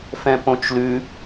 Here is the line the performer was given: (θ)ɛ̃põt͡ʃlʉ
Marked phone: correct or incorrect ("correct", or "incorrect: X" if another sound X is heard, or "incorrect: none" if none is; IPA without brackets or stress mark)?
incorrect: f